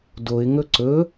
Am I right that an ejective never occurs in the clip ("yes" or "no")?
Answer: yes